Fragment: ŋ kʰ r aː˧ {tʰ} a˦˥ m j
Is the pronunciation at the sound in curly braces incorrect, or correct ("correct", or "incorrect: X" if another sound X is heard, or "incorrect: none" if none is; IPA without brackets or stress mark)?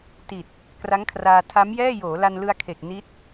correct